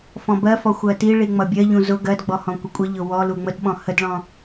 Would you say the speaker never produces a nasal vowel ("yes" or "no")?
no